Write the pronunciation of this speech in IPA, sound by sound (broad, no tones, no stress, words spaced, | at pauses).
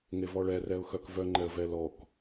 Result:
ŋevɔɭɛ rɛʊ̯xœkvœŋ͡ǃɛə̯ vɛlɔk